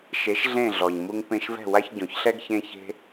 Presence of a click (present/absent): absent